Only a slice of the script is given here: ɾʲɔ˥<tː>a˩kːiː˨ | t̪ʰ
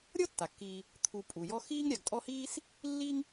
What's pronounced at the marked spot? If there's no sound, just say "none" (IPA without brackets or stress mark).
tː